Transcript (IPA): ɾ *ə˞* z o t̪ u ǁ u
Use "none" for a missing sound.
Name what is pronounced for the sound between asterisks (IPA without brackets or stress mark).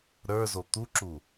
ə˞